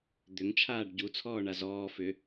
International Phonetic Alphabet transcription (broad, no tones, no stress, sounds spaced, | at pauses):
d̪ ʏ ŋ t͡ʃʰ aː ɖ ɟ u t͡sʰ ɔː ɳ a z ɔː f ʏ